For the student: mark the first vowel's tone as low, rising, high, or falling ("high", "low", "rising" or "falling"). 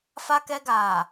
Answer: high